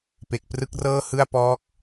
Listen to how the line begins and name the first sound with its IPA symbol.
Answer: p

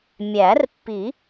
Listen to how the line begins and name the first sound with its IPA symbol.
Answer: mʲ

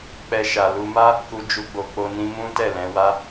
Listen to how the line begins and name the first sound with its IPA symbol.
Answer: k͡p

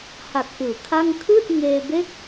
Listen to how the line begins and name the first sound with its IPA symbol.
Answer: h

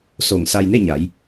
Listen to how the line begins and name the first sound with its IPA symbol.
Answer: s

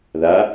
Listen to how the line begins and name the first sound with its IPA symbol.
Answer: ð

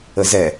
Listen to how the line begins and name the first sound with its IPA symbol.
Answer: ə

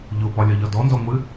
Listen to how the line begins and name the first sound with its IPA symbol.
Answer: ʎ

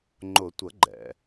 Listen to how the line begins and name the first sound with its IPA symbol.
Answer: ŋ͡ǃ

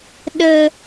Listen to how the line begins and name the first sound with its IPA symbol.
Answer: ɗ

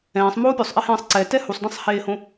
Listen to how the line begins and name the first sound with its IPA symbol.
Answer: ɛ̃ː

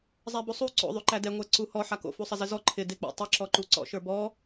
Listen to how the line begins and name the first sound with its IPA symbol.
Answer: zˤ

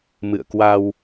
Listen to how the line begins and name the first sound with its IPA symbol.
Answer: m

